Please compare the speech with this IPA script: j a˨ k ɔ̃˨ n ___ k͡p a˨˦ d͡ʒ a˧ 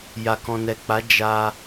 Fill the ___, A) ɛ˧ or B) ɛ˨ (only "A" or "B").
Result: B